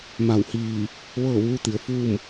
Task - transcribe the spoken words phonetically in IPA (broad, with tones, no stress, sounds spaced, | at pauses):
m a˧˩ w h iː˧˩ | ʋ ɤː˥˨ ʋ uː˧˥ t̪ i˩ ə̯ f uː˥˨ m